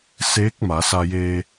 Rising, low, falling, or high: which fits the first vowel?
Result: rising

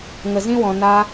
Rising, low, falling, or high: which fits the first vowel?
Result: low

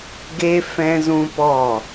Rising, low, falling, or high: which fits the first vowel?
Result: high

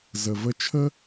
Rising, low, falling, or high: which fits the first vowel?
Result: low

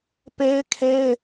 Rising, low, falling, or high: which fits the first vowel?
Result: high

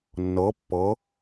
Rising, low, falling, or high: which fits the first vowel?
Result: rising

